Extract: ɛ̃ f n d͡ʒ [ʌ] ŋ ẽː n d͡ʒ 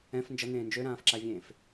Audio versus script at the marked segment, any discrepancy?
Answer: no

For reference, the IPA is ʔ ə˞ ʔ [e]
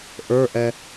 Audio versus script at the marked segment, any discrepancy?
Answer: yes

